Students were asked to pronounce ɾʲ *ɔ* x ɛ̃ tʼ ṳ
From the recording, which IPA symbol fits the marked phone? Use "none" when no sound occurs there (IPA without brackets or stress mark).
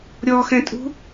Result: ɔ